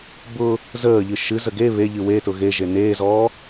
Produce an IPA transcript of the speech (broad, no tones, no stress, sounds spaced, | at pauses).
b ʊ | z əː ʎ ɨ ʃ ɨ z ə ɡ e β e ʎ ɨ w e t ʊ ɣ e ʒ e n eː z ɔː